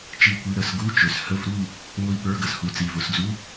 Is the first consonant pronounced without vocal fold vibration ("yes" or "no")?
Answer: yes